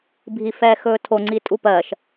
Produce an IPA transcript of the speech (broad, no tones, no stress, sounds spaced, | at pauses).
bʱ i f ɛː x ɵː tʰ o ŋ͡ǀ i tʼ u p ɜ ʃ